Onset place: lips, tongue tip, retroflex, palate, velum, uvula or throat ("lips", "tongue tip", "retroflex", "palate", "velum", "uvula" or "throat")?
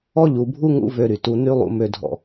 palate